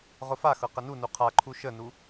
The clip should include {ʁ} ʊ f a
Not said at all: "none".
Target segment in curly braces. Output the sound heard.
ʁ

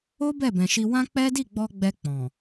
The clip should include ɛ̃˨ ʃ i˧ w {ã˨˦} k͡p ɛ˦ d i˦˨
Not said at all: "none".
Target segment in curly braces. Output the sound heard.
ã˦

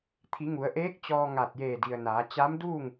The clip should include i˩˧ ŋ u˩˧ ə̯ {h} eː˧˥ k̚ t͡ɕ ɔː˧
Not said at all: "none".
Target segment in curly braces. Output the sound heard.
ʔ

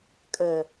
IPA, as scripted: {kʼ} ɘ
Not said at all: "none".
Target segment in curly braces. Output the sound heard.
kʼ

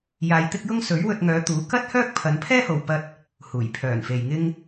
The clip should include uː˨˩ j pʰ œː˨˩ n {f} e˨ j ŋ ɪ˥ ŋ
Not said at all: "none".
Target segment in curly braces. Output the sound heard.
f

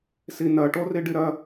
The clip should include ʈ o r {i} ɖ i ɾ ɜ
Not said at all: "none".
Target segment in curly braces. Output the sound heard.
i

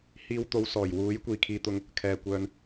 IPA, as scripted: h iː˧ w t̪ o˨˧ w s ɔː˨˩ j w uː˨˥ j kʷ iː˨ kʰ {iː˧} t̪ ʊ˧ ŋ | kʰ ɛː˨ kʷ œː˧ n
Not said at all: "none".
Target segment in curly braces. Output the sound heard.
iː˧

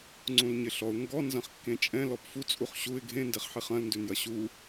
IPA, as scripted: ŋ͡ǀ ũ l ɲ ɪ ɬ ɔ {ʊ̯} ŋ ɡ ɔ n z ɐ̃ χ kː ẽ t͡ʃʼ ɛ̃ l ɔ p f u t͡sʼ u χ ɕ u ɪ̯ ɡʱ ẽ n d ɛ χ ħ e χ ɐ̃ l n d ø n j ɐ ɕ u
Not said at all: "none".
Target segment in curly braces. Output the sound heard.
ʊ̯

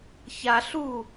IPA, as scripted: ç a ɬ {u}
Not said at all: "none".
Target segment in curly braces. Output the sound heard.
u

